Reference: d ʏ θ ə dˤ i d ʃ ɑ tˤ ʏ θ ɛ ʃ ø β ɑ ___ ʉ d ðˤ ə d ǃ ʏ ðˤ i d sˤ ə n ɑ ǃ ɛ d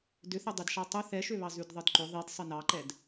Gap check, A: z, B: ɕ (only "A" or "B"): A